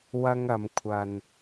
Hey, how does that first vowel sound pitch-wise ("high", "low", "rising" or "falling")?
high